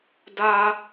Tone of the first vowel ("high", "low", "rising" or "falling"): high